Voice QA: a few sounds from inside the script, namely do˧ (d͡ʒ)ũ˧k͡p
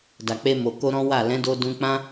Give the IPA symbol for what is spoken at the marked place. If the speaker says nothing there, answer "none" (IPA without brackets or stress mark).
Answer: d